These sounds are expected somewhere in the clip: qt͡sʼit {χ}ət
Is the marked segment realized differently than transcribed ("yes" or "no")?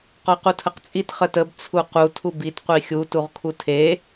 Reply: no